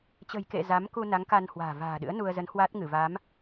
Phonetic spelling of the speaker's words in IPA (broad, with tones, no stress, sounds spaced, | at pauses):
t͡ɕ ə̤˨˩ j k ḛ˧˨ z a˨˦ m k u˧ n a˨˦ ŋ k a˧ n h w a̤ː˨˩ v a̤ː˨˩ ɗ ɨ̰˧˥ ə̯ n u˧ ə̯ z ə˨˦ n h w a˦˥ t̚ ŋ ɨ˧˩ v a˨˦ m